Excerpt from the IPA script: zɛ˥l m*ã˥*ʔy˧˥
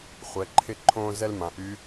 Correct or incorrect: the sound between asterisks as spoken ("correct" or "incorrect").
incorrect